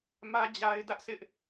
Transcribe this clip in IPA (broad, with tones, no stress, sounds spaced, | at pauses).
m ä˦ d͡ʑ a˦ ɪ̯ d ä˦ ʔ sʰ ɪ˦ ʔ